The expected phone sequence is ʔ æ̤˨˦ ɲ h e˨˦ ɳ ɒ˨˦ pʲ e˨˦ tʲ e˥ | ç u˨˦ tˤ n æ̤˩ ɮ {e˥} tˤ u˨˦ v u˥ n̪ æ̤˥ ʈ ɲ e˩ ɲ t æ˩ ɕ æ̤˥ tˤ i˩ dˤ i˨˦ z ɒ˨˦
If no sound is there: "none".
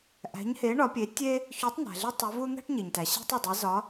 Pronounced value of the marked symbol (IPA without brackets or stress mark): e˥